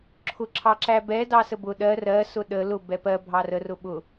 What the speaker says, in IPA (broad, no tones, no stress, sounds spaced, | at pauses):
ǁʰ ʊ ǁʰ ɑ ǁ æ b ɛ d ɑ s ə b ʊ ɗ ɜ r ɜ s ʊ ɗ ə l ʊ b ɛ p ɜ bʱ ɑ r ə r ʊ ɓ ʊ